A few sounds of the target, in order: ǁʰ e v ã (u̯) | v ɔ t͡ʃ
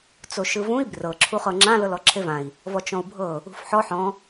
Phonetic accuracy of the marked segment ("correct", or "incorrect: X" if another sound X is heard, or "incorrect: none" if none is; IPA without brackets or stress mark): incorrect: i̯